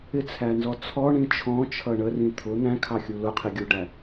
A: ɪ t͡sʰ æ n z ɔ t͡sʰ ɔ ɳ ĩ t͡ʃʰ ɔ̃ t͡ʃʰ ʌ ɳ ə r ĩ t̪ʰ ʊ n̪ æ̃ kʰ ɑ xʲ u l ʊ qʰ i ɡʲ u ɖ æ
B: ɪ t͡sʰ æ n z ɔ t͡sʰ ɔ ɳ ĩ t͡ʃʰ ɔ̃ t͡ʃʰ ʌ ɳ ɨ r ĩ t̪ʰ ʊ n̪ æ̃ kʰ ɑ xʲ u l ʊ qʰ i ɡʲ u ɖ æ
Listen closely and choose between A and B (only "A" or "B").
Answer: A